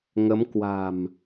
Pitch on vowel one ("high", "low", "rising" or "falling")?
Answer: rising